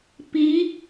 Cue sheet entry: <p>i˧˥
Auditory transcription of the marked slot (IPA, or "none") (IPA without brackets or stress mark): p